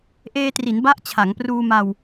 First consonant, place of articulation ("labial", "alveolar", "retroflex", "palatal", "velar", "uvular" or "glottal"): glottal